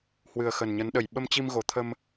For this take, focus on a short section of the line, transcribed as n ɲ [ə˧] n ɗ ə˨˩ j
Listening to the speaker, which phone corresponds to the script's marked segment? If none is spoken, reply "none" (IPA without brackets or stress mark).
ə˨˦